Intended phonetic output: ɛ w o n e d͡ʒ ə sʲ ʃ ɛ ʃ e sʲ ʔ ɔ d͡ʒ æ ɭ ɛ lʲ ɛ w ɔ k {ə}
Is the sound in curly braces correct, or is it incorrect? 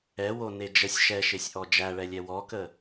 correct